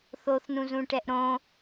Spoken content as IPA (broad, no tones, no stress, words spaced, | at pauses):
θoθnũzũʈɛʔ ɾõ